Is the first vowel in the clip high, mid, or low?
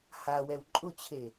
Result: low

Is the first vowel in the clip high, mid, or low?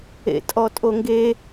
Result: mid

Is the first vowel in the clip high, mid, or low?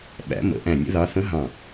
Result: low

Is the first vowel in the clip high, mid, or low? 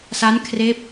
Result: low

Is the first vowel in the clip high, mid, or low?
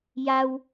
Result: low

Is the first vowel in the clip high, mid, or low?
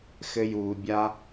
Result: mid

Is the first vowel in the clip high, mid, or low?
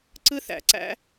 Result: high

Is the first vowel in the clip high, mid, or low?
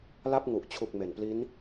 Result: low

